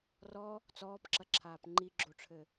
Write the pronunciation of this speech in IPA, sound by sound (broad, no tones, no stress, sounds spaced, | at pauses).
r ɔ | t͡s ɔː p ǁ ɐ ǁʰ aː p ŋ͡ǃ i ɡ͡ǁ o ʈ͡ʂʰ ɘ